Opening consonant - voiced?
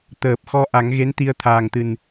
no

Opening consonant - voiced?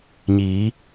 yes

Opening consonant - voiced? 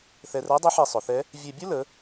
no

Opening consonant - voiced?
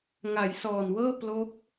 yes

